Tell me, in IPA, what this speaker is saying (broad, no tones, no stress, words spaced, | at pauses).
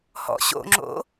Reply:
hɔ̰ɕo̰ŋ͡ǁo̰